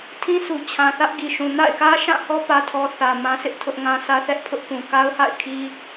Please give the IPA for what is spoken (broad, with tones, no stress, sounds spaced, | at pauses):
tʰ ĩ˦ s u˨ t͡ɕʰ ã˨ θ ä˦ ʔ ɡ i˨ ʃ ũ˨ n a̰˦˨ ɪ̯ k ä˦ ʃ ã˦˨ h ɔ˦ p ä˦ tʰ ɔ˦ θ ä˨ m ã˦ sʰ ɪ˦ ʔ tʰ ʊ˦ ʔ ŋ ã˦ s ä˦ θ ɛ˦ ʔ pʰ ʊ˦ ʔ p ũ˨ k a˦ ʊ̯ h a̰˦˨ ɪ̯ kʰ i˦